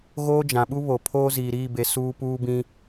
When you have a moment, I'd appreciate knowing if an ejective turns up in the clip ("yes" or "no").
no